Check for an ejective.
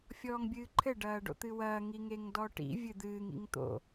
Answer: absent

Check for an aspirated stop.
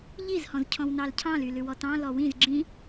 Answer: present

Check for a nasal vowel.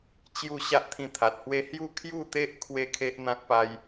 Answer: present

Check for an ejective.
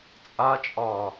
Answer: present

